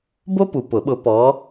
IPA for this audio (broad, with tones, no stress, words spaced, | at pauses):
bo˥pu˨pʊ˨˩˦ɓʊ˨˦ pɔ˨˦